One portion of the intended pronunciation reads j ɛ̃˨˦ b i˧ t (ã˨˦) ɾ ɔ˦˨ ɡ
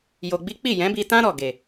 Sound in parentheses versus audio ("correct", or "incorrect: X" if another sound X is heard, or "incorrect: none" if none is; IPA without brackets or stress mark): incorrect: ã˦